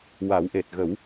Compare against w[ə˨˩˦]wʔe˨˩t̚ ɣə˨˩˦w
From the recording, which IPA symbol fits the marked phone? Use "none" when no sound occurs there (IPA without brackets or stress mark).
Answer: a˨˩˦